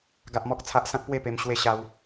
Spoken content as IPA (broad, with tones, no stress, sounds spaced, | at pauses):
ɡ a˦ ʔ m ɔ˦ k̚ t͡sʰ a˦ ʔ s ã˦ k̚ p w e˥˧ p e˧ m ɕ w e˥˧ ɕ a˦ w